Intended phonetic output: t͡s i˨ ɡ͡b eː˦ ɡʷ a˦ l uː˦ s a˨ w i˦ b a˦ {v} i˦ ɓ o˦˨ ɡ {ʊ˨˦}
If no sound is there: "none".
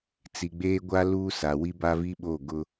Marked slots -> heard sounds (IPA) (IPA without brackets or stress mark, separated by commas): v, ʊ˦